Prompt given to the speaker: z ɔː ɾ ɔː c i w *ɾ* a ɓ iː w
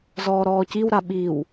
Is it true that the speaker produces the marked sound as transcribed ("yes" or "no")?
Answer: yes